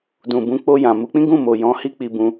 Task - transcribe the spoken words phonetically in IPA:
dũ˨ bũ˨˦k͡po˧jã˨ mu˨˦k͡pĩ˦ɡũ˦˨ mo˨jɔ̃˨˦ hi˦k͡pi˧bũ˧

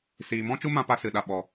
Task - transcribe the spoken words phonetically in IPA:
siː˨mɔ̃˦t͡ʃu˦ mã˦pa˦sɨ˨ɗa˨ ɓɔ˨

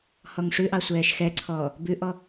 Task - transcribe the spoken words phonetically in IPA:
hɔŋʂʉʔɑ sʷɛːʃxɛǀʰɔː | bʉʔɔ

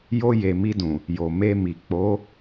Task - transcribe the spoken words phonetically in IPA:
jo˧ je˨mi˧dũ˨ | jo˨me˧mi˨ k͡po˨˦

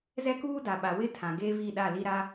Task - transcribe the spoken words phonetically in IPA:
zɛ˦kuː˦ da˨ɓa˨ wɪ˦tʰã˨ ɡeː˦vi˦˨ɗa˦˨li˦ ɾa˦

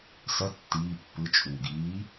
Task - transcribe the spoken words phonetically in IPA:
sʌ tːiː pːɯ t͡ʃʼuːɡiː

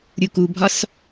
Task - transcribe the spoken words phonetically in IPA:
ɾʲukubʱɒs

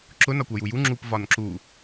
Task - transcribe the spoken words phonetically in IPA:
ǁʊ nɒkʷʌjuju ŋ͡ǁup vɒnǁu

